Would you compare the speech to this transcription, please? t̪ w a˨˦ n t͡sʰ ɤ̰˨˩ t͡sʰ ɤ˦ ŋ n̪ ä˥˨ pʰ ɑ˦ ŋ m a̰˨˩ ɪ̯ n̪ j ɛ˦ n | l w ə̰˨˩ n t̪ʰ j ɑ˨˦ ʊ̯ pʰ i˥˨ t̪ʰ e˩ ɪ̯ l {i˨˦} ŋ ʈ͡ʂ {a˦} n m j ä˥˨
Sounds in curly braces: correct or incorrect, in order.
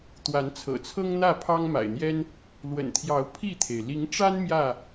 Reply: correct, correct

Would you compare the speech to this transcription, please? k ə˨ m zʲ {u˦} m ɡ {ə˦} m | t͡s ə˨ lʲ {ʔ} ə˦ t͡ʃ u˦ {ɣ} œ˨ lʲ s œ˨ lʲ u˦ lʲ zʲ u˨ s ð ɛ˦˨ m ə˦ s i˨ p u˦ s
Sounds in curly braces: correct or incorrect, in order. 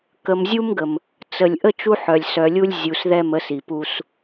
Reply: correct, incorrect: ə˨, correct, incorrect: ħ

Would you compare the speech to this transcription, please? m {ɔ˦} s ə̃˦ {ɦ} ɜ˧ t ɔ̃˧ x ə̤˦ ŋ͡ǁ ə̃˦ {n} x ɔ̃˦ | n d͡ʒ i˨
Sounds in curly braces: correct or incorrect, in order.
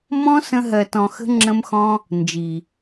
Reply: incorrect: ɔ̃˦, correct, incorrect: m

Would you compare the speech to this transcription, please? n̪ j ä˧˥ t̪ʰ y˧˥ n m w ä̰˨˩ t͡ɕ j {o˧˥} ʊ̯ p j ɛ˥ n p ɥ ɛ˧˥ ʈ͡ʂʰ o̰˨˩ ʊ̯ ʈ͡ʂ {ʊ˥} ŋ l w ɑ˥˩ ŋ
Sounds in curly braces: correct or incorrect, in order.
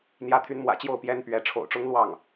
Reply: incorrect: o˥˩, correct

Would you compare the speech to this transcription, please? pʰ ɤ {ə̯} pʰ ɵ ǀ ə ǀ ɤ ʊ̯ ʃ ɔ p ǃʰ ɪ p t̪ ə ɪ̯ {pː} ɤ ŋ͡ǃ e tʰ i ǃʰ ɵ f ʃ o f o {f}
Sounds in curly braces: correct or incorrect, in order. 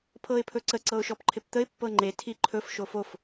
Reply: incorrect: ɪ̯, correct, correct

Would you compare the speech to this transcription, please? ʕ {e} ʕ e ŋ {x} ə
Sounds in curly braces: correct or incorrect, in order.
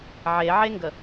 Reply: correct, incorrect: ɡ

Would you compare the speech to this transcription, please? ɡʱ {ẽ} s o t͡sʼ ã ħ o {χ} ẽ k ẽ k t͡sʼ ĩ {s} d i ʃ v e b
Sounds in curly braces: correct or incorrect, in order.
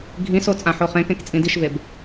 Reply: incorrect: ĩ, correct, incorrect: none

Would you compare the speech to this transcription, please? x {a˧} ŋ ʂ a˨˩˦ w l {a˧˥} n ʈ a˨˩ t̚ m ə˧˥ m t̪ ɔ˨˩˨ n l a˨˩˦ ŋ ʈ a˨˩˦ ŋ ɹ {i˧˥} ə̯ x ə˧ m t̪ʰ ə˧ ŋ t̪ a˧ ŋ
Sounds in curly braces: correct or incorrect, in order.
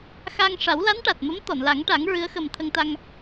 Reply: correct, correct, incorrect: ɨ˧˥

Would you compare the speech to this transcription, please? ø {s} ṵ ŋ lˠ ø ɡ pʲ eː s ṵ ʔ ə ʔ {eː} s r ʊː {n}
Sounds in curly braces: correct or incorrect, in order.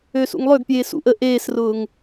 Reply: correct, correct, incorrect: ŋ

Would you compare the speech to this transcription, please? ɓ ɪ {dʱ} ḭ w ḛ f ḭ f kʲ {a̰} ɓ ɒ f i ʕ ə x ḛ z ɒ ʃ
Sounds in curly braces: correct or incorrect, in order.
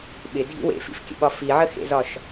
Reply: correct, incorrect: ə̰

